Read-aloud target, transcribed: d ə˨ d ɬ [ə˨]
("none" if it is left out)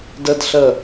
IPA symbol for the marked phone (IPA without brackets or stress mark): ə˨